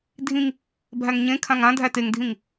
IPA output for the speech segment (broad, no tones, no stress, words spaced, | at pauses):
dʱĩŋ | bʱæŋɲẽkʰãŋ ã dʱæteŋdʱĩŋ